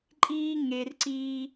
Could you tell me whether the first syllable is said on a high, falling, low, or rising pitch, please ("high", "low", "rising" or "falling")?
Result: high